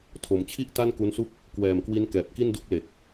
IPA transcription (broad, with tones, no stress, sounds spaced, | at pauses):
tʰ o˩˦ m t͡ɕʰ i˥˩ ʔ t a˥˩ n k u˦˥ n s u˥˩ k̚ | k w ɛː˨˩ m k w i˦˥ n k ɛː˨˩ p̚ k i˥˩ n d u˥˩ k̚ l e˨˩ k̚